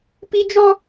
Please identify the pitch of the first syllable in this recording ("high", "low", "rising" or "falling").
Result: high